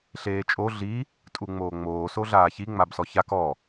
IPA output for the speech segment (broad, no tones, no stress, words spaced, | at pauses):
ɬeːt͡ʃʼo ɮi | tʼuŋ͡moːŋ͡moː soɮaːçi ŋ͡mabsɔçak ɔ